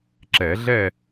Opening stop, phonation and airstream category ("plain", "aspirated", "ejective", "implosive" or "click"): click